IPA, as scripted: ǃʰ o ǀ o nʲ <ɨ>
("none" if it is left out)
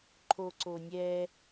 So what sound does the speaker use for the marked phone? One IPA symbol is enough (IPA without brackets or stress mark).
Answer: ɛ